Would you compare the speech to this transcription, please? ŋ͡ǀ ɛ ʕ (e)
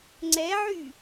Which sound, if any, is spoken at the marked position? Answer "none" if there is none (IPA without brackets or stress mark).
y